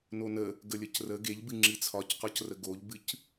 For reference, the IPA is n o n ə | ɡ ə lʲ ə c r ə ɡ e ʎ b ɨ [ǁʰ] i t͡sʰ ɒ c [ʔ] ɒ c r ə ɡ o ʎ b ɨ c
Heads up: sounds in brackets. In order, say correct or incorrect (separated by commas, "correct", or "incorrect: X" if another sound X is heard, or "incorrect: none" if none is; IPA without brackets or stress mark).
incorrect: ŋ͡ǁ, incorrect: q